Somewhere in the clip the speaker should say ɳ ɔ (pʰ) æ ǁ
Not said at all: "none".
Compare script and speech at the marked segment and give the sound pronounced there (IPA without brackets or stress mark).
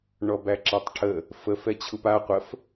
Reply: b